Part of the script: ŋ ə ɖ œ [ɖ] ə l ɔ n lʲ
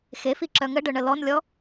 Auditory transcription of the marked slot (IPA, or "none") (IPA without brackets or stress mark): ɳ